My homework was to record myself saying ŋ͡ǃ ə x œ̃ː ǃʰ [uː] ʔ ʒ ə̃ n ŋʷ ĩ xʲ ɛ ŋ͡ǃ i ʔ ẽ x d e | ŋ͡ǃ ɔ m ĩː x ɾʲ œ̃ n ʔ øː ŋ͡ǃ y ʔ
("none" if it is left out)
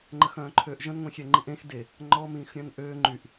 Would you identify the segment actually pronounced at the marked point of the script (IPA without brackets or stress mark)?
øː